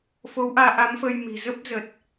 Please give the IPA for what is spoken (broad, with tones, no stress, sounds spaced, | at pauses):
f o˨˦ w ʔ aː˧ ʔ a˨˦ m f ə˧ j m i̤˨˩ z ə˦˥ p̚ z ə˨˩ t̚